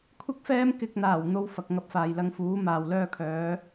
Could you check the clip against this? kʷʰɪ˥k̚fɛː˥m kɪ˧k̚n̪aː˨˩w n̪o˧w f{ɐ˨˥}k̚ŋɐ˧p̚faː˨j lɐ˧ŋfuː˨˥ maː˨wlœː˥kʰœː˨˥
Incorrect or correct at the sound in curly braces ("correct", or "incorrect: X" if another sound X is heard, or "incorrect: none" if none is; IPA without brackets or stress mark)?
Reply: incorrect: ɐ˨